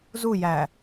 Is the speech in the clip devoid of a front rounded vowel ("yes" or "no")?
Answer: yes